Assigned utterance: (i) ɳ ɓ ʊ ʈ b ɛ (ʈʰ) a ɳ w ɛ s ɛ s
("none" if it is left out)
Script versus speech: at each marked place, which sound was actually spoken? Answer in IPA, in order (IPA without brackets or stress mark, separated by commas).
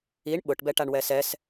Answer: i, ʈ